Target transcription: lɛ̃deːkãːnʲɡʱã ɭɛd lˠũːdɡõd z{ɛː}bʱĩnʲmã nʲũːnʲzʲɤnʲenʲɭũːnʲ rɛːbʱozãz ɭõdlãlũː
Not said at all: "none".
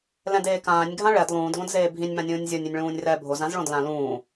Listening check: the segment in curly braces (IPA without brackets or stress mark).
eː